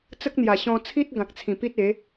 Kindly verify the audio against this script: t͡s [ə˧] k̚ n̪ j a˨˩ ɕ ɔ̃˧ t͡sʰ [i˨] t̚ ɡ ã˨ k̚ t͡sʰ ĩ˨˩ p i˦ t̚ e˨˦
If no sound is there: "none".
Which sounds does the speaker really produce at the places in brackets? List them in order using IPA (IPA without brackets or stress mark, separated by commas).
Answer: ə˦, i˦